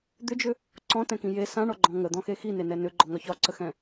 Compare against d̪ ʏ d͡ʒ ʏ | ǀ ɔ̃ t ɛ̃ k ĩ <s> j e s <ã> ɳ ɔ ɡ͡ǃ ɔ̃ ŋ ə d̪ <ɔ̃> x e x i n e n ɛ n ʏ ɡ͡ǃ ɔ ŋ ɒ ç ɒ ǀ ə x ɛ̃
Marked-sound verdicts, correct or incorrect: incorrect: none, correct, correct

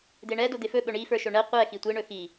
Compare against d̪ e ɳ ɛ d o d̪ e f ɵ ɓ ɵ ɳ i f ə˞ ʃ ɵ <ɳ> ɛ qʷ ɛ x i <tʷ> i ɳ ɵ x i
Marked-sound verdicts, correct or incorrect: correct, correct

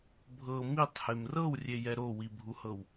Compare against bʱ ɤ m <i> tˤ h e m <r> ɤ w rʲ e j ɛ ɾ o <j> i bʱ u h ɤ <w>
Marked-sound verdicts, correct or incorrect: correct, correct, incorrect: w, correct

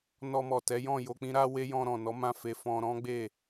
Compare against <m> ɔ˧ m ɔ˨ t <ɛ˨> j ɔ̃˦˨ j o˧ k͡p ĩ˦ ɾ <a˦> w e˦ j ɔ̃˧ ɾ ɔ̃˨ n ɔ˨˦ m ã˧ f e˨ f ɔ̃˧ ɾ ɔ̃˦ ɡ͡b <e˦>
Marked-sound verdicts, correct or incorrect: incorrect: n, incorrect: ɛ˨˦, correct, incorrect: e˦˨

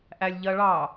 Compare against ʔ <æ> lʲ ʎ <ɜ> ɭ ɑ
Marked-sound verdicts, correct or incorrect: correct, correct

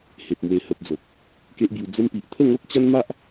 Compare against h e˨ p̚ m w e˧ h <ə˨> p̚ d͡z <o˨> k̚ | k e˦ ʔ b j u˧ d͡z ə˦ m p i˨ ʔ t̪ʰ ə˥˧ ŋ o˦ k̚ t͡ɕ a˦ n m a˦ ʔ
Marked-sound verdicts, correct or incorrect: correct, correct

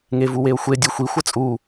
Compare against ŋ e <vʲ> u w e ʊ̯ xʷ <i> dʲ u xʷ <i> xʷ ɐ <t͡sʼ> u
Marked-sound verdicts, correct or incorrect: incorrect: v, incorrect: e, correct, correct

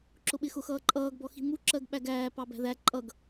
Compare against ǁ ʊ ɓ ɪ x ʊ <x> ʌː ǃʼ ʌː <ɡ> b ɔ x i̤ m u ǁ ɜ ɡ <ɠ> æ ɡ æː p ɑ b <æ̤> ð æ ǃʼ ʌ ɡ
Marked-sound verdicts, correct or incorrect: correct, correct, incorrect: ɓ, correct

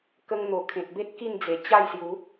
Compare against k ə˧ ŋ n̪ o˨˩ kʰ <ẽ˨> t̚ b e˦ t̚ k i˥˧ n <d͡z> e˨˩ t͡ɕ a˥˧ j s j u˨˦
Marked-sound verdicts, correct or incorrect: correct, correct

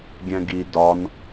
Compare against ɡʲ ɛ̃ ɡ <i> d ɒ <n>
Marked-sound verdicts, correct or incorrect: correct, correct

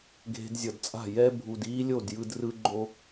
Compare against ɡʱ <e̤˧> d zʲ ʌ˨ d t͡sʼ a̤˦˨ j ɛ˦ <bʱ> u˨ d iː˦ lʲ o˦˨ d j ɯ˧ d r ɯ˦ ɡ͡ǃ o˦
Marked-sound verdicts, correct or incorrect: correct, correct

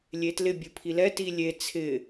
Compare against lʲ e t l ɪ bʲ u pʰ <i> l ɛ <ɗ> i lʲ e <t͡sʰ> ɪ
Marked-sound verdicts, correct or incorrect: correct, incorrect: t, correct

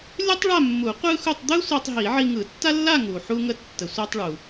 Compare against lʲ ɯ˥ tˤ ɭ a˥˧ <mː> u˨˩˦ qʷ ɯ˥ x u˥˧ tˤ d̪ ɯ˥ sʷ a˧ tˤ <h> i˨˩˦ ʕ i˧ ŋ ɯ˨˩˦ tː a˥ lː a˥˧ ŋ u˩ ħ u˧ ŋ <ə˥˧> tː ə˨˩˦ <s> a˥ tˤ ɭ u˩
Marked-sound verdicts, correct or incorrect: correct, incorrect: ɦ, incorrect: ə˥, incorrect: sʷ

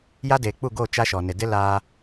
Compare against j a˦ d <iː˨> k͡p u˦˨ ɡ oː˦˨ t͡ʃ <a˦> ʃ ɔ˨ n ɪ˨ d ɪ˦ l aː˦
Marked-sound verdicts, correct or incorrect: incorrect: eː˨, correct

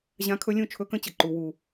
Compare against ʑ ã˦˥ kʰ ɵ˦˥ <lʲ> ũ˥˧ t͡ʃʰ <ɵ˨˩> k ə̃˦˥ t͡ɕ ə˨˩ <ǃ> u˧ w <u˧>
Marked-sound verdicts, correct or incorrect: correct, incorrect: ɵ˦˥, correct, correct

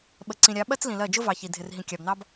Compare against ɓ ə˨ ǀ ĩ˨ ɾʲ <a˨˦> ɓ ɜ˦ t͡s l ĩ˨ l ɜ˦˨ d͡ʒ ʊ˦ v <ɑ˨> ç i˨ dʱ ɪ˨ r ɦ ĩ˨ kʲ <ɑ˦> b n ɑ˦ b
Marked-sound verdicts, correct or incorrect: incorrect: ɑ˨˦, correct, incorrect: ɑ˨

